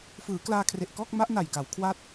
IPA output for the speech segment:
f ɯː˩˦ k l aː˧ kʰ r e˨˩ ʔ k ɔː˥˩ k̚ m a˦˥ ʔ n a˨˩ j k a˩˦ w kʰ w aː˦˥ t̚

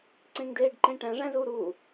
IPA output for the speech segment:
ǀ ẽ ŋ d eː ɖ ǃ ẽ ʈ æ̃ ʐ æ̃ z uː ɾ uː

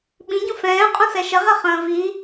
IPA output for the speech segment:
ɓ ĩ ɟ ũ f ɛ̃ː qʼ ũ s ɛ ʃ ə ʁ ɛ χ ə̃ː v i

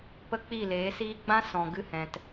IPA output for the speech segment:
p ə˦ k͡p i˦˨ l eː˨˦ s iː˦ ɡ͡b ã˦ s ɔ̃˨ ɡ ɨ˧ h ɛ̃˨ t

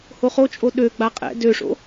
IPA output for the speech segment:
h o χ o t͡ʃʼ o ɗ ø ɡ͡b a qʼ ɛ̰ d ø ʂ o̰

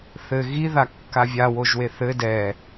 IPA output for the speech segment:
θ ɘ ɣ i ð a kː a vʲ a w o ʒ w e θ ɘ d ɛ

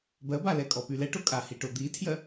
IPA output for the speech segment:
b ɜ b a l ɛ kʼ ɔ p y l ɛ ʈ o kʼ a h i ʈ o d̪ i tʰ j ɜ

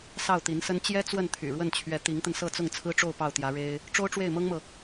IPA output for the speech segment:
s ɑ˥˩ ʊ̯ t̪ i˧˥ n s ə˥ n t͡ɕ j ɛ˥ t͡s w ə˥˩ n t̪ʰ y̰˨˩ ɻ w ə˥˩ n t͡ɕʰ ɥ ɛ˧˥ t̪ i˧˥ ŋ t̪ ə˧ n s ɤ˥˧ t͡s ʊ˥˩ ŋ t͡sʰ ɹ̩˥ ʈ͡ʂ o˥˧ ʊ̯ p ɑ˥˩ ʊ̯ t̪ j ä˧˥ ɻ e˥ ɪ̯ | ʈ͡ʂ o˥ ʊ̯ ʈ͡ʂ w e˥˩ ɪ̯ m ɤ˥ ŋ m ɤ˨

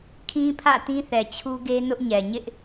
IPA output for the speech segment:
kʰ ĩ˦ pʰ ä̰˦˨ t ĩ˦ θ ɛ˨ t͡ɕʰ u˦ ɡ e˦ n ʊ˦ ʔ ɲ ɛ˨ ɲ ɪ˦ ʔ

